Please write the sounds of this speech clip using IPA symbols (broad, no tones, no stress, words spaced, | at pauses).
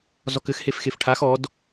zɔkɘxhef xefʈʰax ɔd